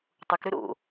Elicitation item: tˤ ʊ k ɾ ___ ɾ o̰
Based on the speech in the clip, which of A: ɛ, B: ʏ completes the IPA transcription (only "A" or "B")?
B